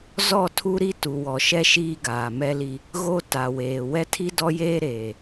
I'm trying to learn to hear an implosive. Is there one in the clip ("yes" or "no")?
no